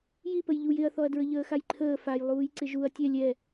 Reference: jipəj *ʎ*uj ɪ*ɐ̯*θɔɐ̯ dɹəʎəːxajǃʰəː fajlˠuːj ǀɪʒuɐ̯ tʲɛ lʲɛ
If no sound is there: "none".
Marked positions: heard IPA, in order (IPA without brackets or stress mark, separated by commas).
ʎ, ɐ̯